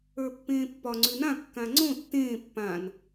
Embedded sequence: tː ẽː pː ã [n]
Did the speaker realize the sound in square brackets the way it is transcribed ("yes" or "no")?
yes